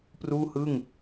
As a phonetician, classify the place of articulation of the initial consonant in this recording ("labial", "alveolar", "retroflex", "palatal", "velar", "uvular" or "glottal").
labial